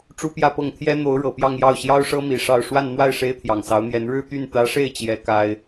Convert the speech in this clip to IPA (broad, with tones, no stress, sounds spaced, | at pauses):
ʈ͡ʂ u˥ p j ä˥˧ p ɤ˥˩ ŋ t̪ʰ j ɛ˥ n̪ o˧˥ ʊ̯ ɻ ɤ˨˩ p j ɑ˥˧ ŋ j ɑ˥˩ ʊ̯ ɕ j ɑ˥ ʊ̯ ʂ ɤ˥ m i˨˩ ʂ ɑ˥˧ ʊ̯ ʂ w a˥˧ n n̪ w a˥˩ ɪ̯ ʂ e˥ ɪ̯ t̪ʰ j ɑ˨˩ ŋ s ɑ˧˥ ʊ̯ n̪ j ɛ˧˥ n ɻ ɻ̩˥˧ t̪ y˥˩ n t̪ ä˧˥ ʂ e˥˩ ɪ̯ t͡ɕ j ɛ˥ k a˥ ɪ̯